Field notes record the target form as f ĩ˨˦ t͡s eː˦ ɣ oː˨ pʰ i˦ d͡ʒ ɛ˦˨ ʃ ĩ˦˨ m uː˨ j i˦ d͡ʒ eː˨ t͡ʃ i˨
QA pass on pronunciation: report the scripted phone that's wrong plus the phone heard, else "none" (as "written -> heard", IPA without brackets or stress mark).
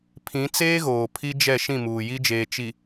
f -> pʰ